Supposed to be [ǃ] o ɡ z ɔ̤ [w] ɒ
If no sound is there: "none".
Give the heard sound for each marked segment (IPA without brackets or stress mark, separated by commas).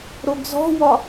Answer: ɾ, w